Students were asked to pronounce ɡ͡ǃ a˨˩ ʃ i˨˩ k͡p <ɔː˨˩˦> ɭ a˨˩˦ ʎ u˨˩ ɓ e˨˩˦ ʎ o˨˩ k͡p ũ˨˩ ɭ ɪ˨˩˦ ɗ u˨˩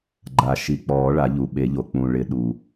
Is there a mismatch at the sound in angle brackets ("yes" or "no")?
no